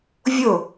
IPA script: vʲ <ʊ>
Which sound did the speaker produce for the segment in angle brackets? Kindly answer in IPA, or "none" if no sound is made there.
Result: ʊ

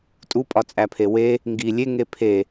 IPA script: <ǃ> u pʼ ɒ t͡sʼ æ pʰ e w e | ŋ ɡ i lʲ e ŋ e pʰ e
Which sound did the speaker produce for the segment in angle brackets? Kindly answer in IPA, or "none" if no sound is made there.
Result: tʼ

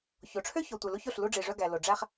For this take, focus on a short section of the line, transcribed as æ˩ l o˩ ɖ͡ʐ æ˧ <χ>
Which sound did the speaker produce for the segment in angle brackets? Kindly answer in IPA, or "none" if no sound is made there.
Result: χ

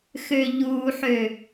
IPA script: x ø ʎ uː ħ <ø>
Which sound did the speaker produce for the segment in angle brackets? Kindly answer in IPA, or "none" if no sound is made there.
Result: ø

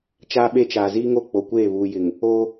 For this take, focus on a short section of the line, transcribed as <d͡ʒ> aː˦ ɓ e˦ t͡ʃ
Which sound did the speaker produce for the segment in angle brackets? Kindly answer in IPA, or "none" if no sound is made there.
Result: t͡ʃ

